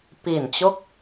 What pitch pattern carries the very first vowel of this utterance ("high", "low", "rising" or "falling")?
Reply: low